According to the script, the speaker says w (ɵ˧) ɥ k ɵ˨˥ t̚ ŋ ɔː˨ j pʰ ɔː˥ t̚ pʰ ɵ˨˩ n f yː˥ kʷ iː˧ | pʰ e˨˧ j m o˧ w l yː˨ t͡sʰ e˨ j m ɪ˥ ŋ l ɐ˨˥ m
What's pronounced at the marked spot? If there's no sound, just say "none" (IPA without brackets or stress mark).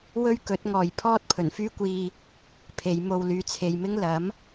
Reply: ɵ˥